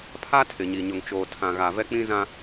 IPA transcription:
pʰ a˦ tʰ ɪ˨ ɲ i˨ ɲ ʊ˨ ŋ t͡ʃ oː˨ tʰ ã˨ ɣ a˨ v ɛ˦ k͡p ĩ˦ z ã˦

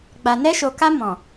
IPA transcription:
ɡ͡b a˨ n ɛ˧ ʃ o˨ k a˧ m ɔ̃˨

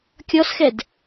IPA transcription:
kʲ ɔ s x ɛ d

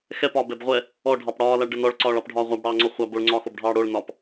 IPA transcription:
x ɛ p ɒː b ɛ b ʁʷ ɛ | ɔ ɖʱ ɑ p ɽ ɒː l a ɭ ɖ ə n ɔ ɭ ǀ ɒː ɭ ɑ p ɖʱ ɒː ʁʷ a b ɽ ɑː ŋ͡ǀ ɔ χʷ ɑ b o ɭ ŋ͡ǀ ɒː x o b ɖʱ ɑː ɽ o ɭ n ɒ p

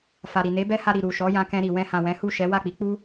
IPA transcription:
f a˨ ɾ i˨ n e˨˦ b ɛ˦ h a˧ ɾ i˨ ɾ u˨ ʃ ɔ˨˦ j ã˧ k ɛ̃˧ ɾ i˨ w ɛ̃˧ h ã˨ w ɛ̃˨˦ h u˦˨ ʃ ɛ˨˦ w a˦˨ k͡p i˨˦ k͡p u˦

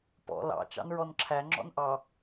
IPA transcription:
p ɔ̰ l ɑ̰ t͡ʃ ɑ̰ n ɹ ɔ n ǁʰ æ ŋ͡ǁ ɔ̰ n ʔ ɑ

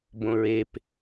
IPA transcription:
b õ ɹ e p

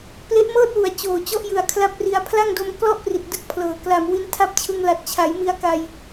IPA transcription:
p l e˦˥ ʔ m ɤː˥˩ t̚ w u˨˩ a̯ t͡ɕ oː˨˩ t͡ɕ ɔ˦˥ ʔ j ɯ˨˩ a̯ kʰ l a˥˩ p̚ r i˧ a̯ pʰ l a˥˩ ŋ d o˧ m k l ɔ˥˩ ʔ p r i˨˩ t̚ d ɯ˦˥ k̚ pʰ l ɤː˨˩ k l a˨˩ m w i˦˥ n tʰ a˥˩ p̚ t͡ɕʰ ɯ˧ ŋ l a˨˩ t̚ t͡ɕʰ a˩˦ j m i˧ a̯ k a˧ j

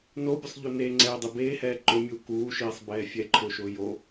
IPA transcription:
n o bʲ ʊ sˤ ʎ o n e ŋ͡ǀ ɛː dˤ i b eː h ɛː ǃ ʊ mʲ u k uː ʃ iː sˤ b ɛː fʲ ɛ ǃʰ ʊː ʃ ʊː j o

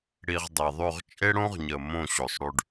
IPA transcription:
ɽ i˧ ʁ dˤ i˨ ðˤ ʉ˦˨ ʁ t͡ʃʼ e˦ ɽ õ˦ ʁ ɲ ə˨ m õ˦˨ ɕ o˨ sˤ ɽ ʉ˧ ɖ

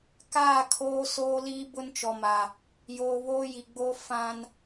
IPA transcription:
k aː˦˨ kʰ oː˦ s oː˦ l iː˦ b ʊ˦ n t͡ʃ ɔ˨ m a˨ | j oː˨ β oː˦ j i˨ ɡ͡b oː˦ f ã˦ n

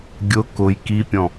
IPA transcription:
ɡʲ ʊ k ʊ j k i pʲ ɔ̃

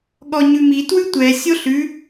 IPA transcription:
ɠ ɔ ɲ ʉ m i t w ʉ tʷ ɛ sʲ o ɬ ʉ

